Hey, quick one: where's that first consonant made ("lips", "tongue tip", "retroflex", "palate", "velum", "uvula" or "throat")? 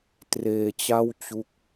tongue tip